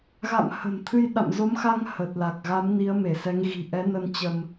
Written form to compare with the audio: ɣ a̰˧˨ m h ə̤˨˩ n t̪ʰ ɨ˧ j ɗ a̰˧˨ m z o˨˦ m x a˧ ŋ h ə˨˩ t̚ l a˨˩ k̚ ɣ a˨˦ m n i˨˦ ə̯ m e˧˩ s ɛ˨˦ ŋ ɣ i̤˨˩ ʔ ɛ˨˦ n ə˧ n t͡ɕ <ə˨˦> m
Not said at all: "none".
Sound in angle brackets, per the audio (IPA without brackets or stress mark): ə˧